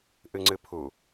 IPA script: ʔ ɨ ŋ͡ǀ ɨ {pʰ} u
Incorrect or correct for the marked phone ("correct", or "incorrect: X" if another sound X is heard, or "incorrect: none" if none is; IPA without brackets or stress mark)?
correct